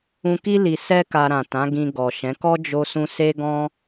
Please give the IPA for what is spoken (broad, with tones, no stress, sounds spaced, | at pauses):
ũ˧ k i˦ l i˧ s ɛ˦ k a˧ ɾ ã˨ t ã˨˦ ɡ ĩ˧ ɡ ɔ˨ ʃ ɛ̃˨˦ k ɔ˦ d͡ʒ o˧ s ũ˧ s e˦ ɡ ɔ̃˦